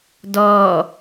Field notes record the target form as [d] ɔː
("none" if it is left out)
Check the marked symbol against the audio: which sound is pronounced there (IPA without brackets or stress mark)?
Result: d